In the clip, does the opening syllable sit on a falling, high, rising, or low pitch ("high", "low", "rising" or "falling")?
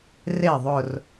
falling